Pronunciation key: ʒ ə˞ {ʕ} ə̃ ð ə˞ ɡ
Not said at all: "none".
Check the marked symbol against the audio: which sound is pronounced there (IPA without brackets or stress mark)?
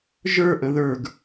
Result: ʔ